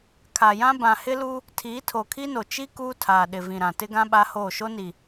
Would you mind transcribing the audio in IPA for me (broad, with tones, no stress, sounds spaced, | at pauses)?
kʰ a˨ j ã˦ b ã˨ h ɪ˦ l u˦ | tʰ iː˨˦ tʰ o˨ kʰ i˦ n o˨ t͡ʃ i˦ k uː˦ tʰ aː˨ ɗ ɪ˨ v ĩ˨ ɾ ã˨ t ɪ˦ ɡ ã˦ ɓ a˦ h oː˦˨ ʃ o˦ n i˨